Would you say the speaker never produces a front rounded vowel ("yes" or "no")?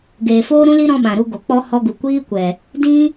yes